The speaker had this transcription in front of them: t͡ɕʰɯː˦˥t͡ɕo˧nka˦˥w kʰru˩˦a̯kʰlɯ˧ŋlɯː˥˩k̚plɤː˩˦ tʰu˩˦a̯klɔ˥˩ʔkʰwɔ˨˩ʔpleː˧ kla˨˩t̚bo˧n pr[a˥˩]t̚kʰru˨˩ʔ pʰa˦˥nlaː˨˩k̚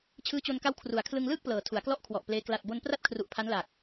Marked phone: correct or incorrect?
correct